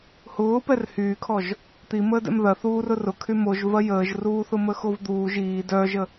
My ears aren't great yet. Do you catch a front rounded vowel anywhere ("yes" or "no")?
yes